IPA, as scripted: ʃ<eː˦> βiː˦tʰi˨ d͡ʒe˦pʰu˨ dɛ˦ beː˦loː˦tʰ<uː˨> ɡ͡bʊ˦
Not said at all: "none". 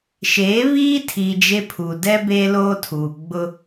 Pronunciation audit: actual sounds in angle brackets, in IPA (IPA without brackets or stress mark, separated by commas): eː˨˦, uː˨